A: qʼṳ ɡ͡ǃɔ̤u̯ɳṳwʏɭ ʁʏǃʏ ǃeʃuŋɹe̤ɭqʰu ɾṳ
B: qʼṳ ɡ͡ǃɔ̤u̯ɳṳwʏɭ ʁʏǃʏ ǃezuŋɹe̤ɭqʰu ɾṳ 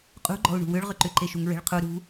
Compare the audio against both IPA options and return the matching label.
A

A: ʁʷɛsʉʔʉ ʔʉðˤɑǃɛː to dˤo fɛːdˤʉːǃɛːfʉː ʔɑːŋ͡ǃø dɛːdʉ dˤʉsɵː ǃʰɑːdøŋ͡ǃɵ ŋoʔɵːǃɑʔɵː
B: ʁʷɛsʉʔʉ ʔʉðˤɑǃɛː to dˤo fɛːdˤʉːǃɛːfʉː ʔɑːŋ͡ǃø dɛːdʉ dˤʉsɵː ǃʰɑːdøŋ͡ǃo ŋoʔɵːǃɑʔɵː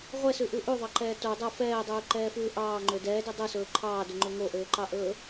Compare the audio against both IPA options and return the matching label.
A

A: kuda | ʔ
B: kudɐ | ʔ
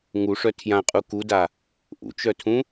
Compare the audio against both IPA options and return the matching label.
A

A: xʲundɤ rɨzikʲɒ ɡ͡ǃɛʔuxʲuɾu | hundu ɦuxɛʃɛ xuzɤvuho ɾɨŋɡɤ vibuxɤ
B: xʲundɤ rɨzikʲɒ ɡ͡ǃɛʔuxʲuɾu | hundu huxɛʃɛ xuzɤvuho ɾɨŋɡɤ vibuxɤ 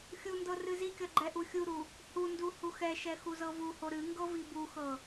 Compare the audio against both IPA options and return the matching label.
B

